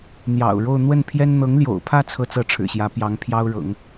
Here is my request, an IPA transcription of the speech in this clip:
n̪jɑ̰˨˩ʊ̯ɻo˥˧ʊ̯ n̪wə˥˩npʰjɛ˥n n̪ɤ˧˥ŋljo̰˨˩ʊ̯pʰä˥˧ t͡sʰɤ˥˧t͡sɤ˥˩ʈ͡ʂʰɻ̩˨˩ɕjä˧˥ pjɑ˧˥ŋpʰjɑ˥ʊ̯ɻɤ̰˨˩˦ŋ

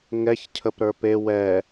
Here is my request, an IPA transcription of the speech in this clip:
ŋɛç cʰəpɾə˞pe wɛ

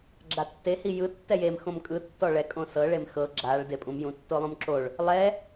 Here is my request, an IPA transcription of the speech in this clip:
ɡ͡ǁatːe hijɯ tːɛjem xõmkʼɯ tːɔɭɛ kʼõsɤ ɭemxɤ ɡ͡ǁaɭ depʼũm jũtːolˠũmǁoɭ | lˠɛ

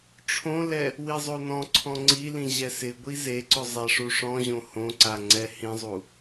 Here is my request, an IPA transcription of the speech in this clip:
ʈ͡ʂʰõlɛ | wizˤonɔ̃ǀʰɔ̃ ŋ͡ǀilĩ ʑɛsɪɡʷi zeǀʊ zˤaʂuʂɔ̃ʑõ hõǀa ŋ͡ǀɛhĩzˤu

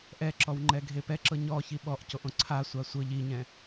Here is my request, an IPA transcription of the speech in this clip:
ʔɛǁɔwŋ͡ǃɛ ɡʱepɛǁɤ ɲɔ çiɓɔʔcoʔõ ǀʰa sʷasʷɤ ʎiɲɛ̃

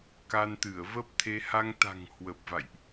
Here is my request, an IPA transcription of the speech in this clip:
ka˧nt̪ɨ˧˩ə̯və˦˥p̚t̪ʰe˧ ha˧ŋt̪a̤˨˩ŋhwə˨˩p̚ va̰˧˨jʔ

